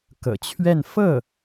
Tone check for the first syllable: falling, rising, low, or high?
low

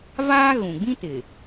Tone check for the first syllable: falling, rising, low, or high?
high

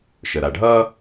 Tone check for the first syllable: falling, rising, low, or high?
low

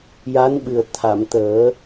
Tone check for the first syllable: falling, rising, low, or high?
rising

